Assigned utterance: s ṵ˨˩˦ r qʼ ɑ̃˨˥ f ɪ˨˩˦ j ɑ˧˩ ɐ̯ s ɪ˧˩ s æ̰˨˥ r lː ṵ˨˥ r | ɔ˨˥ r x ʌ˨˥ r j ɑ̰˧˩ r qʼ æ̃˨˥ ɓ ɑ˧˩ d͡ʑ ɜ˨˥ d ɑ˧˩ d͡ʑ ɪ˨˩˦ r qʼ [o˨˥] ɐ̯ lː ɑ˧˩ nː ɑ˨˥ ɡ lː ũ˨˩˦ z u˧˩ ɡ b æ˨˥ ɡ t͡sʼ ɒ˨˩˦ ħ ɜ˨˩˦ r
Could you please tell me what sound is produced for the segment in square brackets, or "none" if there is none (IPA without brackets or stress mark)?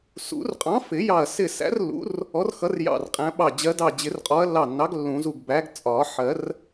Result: ɔ˨˥